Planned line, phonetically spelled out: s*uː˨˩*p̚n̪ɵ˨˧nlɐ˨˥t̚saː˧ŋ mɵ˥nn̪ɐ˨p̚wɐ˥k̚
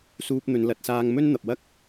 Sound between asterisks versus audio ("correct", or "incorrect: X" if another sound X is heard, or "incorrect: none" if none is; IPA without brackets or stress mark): incorrect: uː˧